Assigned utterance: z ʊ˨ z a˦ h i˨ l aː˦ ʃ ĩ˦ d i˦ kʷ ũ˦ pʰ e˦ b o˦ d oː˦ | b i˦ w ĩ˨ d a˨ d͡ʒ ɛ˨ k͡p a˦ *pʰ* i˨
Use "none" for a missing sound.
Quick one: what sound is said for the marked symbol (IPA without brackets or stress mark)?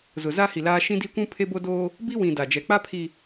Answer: pʰ